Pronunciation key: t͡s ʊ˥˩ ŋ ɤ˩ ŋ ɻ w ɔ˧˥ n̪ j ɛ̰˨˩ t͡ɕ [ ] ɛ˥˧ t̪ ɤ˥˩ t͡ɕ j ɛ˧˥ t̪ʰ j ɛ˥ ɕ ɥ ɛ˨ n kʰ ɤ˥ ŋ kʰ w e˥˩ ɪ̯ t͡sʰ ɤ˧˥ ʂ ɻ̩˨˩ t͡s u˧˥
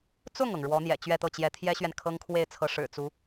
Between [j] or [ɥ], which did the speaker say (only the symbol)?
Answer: ɥ